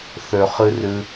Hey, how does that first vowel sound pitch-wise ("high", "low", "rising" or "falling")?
low